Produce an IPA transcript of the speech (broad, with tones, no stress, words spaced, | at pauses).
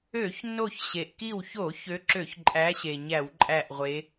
ø˧˩˧çnːo˧˩çɕe˩ʔ ki˧˩wço˧˩˧ çø˨˦ǁø˧˩˧çǃʼæ˨˦ɕe˩ ɲæ˧˩˧wǃʼæ˧˩ʔʁʷe˨˦